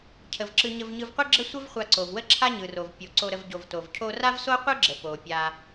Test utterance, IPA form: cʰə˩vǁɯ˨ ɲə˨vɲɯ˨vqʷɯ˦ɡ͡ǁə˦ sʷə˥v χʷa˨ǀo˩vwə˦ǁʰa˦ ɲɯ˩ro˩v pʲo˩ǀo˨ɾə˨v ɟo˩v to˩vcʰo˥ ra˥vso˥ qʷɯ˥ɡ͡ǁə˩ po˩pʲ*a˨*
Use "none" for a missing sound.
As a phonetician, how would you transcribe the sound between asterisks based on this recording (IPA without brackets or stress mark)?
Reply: a˨